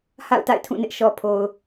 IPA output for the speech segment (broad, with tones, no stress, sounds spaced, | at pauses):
h a̰˦˨ ʊ̯ t a̰˦˨ ɪ̯ tʰ ũ˦˨ n ɪ˦ ʔ ʃ ɔ˨ pʰ o˨ ʊ̯